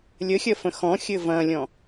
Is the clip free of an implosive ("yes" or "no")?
yes